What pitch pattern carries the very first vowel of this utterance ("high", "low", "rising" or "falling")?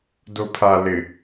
low